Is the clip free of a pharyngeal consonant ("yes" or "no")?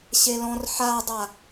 no